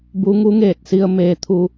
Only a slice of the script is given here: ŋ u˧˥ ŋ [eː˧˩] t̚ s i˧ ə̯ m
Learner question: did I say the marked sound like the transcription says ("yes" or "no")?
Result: yes